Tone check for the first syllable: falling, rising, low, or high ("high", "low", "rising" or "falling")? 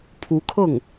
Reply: rising